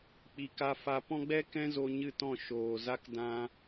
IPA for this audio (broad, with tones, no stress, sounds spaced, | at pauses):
k͡p i˨ k a˧ f a˧ p ɔ̃˦ ɡ͡b ɛ˦ k ɛ̃˦ z o˧ ɲ ɨ˦˨ t ɔ̃˦˨ ʃ oː˨ z a˦ k d ã˦